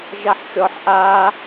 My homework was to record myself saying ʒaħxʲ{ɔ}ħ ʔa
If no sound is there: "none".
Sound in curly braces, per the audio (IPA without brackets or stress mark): ɔ